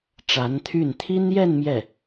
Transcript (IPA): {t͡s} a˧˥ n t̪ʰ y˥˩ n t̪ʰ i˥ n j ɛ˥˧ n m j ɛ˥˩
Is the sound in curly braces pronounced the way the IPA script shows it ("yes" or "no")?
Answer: no